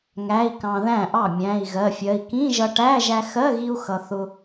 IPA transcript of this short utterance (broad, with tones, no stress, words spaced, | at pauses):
ŋæ˧˥˧i̯kɑ̃˧ðæ̃˥˩ʔɑ˥˩ mʲæ̃˧˥˧i̯ɣɜ˧˥˧fʲɜ˧˥˧i̯ kĩ˧˥˧ʒʌ˧ʈæ˧˥˧ ʒæ˧xɜ˧˥˧ɣi˧u̯ xʌ˧ θʊ˧